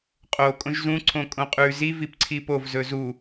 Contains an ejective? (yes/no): yes